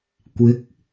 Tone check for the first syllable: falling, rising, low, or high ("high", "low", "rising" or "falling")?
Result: rising